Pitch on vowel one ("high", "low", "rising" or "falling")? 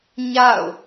falling